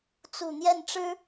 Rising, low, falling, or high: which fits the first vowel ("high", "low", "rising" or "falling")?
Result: low